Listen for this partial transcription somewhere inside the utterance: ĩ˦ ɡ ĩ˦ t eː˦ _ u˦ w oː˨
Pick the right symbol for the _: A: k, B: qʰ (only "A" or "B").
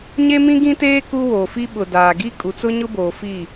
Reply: A